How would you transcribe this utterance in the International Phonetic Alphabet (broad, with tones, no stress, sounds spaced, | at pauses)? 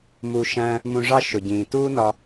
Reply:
m u˧ ʃ æ̃˦ | m ũ˧ ʐ ɑ˦ ʃ ʊ˨ ɟ ĩː˨ t uː˦ n ɒ˧